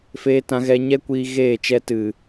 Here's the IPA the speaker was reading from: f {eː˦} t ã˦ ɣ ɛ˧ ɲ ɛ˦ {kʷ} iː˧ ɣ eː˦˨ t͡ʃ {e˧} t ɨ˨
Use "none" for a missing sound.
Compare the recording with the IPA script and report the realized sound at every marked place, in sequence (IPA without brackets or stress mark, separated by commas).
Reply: eː˦, kʷ, ɛ˧